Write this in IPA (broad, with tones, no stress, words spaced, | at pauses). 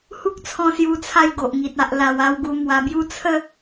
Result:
hu˦k̚t͡sʰɔ̃˧sju˧t͡sʰa˧j ɡo˨ʔŋi˨t̚ a˨ʔla˨˩w a˧wɡu˧mwa˧bju˦ t͡sʰə˦